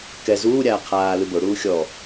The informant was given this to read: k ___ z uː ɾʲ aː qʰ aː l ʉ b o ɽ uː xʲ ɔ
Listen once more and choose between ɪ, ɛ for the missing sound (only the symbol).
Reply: ɛ